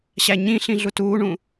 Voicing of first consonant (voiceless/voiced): voiceless